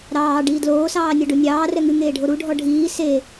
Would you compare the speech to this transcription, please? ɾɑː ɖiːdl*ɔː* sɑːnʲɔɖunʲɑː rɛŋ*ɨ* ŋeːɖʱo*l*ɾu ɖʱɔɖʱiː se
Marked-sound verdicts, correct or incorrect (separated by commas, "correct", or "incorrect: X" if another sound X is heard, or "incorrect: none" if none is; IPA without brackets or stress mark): incorrect: oː, correct, incorrect: none